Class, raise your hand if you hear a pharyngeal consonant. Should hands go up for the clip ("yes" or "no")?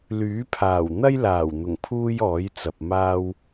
no